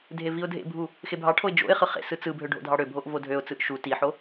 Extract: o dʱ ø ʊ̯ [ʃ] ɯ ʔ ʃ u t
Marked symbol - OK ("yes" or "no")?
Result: no